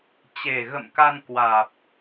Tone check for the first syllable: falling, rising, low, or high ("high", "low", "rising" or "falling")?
low